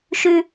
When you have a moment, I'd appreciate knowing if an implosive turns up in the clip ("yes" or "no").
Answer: no